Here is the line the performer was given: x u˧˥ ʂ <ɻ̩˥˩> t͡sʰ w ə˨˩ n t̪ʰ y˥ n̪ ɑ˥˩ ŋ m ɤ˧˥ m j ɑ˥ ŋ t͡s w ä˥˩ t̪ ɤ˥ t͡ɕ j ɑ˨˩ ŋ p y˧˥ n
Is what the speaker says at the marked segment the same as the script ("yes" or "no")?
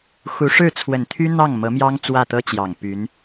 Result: yes